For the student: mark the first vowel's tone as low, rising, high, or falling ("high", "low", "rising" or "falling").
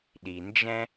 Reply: low